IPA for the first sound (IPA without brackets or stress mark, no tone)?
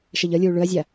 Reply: ʃ